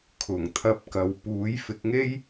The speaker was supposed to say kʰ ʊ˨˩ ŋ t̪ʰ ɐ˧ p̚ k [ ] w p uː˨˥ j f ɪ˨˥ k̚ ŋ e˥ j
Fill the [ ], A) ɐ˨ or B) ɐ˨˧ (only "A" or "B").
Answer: A